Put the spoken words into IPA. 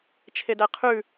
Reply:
t͡ʃʰ e d æ qʰ ʉ

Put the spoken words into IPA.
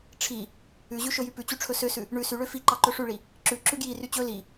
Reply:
ʈ͡ʂʰ i | ʉ ʑ ʉ ʃ ɵ j y p ʉ t͡ɕ y ʈ͡ʂʰ ɵ s ø s ʉ | ɳ ʉ s y ɭ ø f i ǃ ɑ ǃ ɵ ʂ ʉ ɭ i | ǁ ʉ ǁ ʉ ɡ j i r y t͡ɕ ɵ l i

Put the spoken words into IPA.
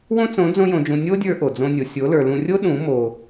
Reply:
w õ˦ t͡s õ˨˦ d͡z õ˧ j õ˨ d͡ʒ ũ˨ nʲ o˦ dʲ ə˞˧ ʔ o˨ d͡z õ˧ nʲ o˨ sʲ o˨˦ l ə˞˨ l ũ˧ rʲ o˦ ɗ ũ˨˦ m o˨

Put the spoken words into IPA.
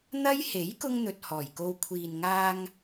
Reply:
n̪ ɐ˥ j h e˨˥ j k ʊ˧ ŋ n̪ ɵ˨ t̚ h ɔː˨˩ j k o˧ w kʷʰ iː˨ n ŋ aː˧ ŋ

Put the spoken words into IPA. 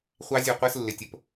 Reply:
χʷ ɑ˦˥ zʲ ɒ˦˨ qʷ ɜ˦˥ s lː ɪ˨˦ tʲ ə˩˧˩ p

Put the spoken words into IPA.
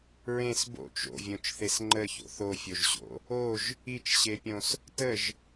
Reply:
ɹ ẽ s b o̰ t͡ʃ o̰ vʲ õ t͡ʃ θ e s ŋ͡ǃ ə ç o̰ θ o fʲ o ʒ ɕ o̰ | o ʒ | i t͡ʃ ɕ e pʲ õ s | t ə ʒ

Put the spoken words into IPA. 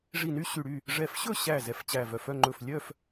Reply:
ʐ i˧˩ n y˥˨ ɕ y˧˩ ɽ y˥˨ | ʐ ɛ˧˩ f ɕ ɵ˥˨ ɕ æ˧˩ z ɛ˧˩ f t͡ɕ æ˧˩ v œ˧˩ f œ˥˨ ŋ͡ǃ ɵ˧˩ f lʲ œ˥˨ f

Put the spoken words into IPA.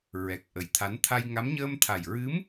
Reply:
ɹ ɛ˨˩ k̚ ʔ ə˨˩ j t̪ʰ a˧˥ n t̪ʰ a˧ j ŋ a˧˥ m ɲ əː˧ m t̪ʰ a˨˩ j ɹ ɨ˧˥ m

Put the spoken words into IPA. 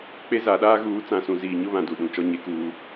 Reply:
k͡p e˦ z a˨˦ ɗ aː˦ ɣ uː˨˦ t͡s ã˨ s ũ˨ z iː˨ ɲ ʊ˦ β ã˨ d u˦˨ ɗ ũ˨˦ t͡ʃ ɔ˦ ɲ e˦ k uː˦

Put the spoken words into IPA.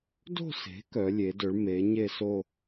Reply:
d o̤˥˧ s e̤˩˥ k œ˩˥ lʲ e˩˥ d ɵ˩˥ ɭ m e˩˥ ɲ e˥˧ s o˥˧

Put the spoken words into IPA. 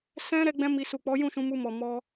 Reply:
s ɛ̃˧ ɾ ɛ˦ ɡ͡b ɛ̃˦ m i˧ s u˨ k͡p ɔ˨˦ j ũ˦˨ ʃ ũ˨˦ m u˧ m ɔ˨ m ɔ˧

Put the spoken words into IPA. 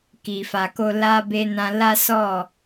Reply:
k i˨ f a˨ k o˧ l a˧ b e˧ n ã˧ l a˦ s ɔ˦˨

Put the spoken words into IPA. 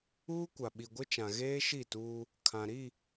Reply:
uː˦ kʷ a˨ ɓ i˨ ɡʷ ɪ˦ t͡ʃ ã˨ ɣ eː˦ ʃ i˦˨ t uː˦ | kʰ ã˨ ɾ i˦˨

